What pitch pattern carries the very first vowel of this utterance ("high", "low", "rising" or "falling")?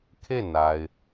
falling